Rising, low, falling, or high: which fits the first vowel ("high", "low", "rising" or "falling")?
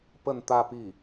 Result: falling